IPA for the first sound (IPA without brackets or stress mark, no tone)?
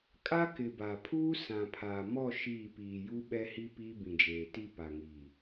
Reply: kʼ